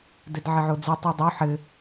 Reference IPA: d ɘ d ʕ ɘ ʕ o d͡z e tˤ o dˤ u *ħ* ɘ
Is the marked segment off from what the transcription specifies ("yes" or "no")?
no